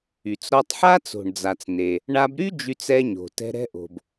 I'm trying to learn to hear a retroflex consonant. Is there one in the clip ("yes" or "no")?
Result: yes